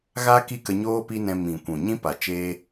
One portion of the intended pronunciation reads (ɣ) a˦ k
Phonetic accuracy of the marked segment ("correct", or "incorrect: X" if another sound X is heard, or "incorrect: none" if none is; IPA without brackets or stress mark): correct